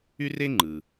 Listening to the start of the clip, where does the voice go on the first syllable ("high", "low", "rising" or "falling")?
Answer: high